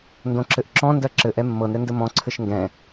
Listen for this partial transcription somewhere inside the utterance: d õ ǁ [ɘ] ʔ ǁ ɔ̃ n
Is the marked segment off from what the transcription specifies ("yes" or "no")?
no